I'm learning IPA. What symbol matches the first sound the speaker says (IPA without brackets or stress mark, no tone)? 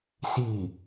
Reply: s